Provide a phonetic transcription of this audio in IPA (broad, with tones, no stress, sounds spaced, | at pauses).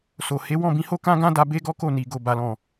s o˨ h e˨˦ w ɔ̃˦˨ b ĩ˧ h o˦ k ã˦ ɡ ã˦ d a˧ b e˦ ɡ ɔ˦ k o˦˨ n i˨ ɡ o˨ b a˨ l ɔ̃˨